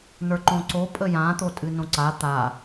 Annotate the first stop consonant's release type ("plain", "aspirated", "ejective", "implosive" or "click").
click